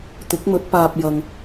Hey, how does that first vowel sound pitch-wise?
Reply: rising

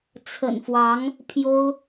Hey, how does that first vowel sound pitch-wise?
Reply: low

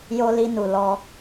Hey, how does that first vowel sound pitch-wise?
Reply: high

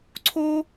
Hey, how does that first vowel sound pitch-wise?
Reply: high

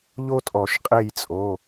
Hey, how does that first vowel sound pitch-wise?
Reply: high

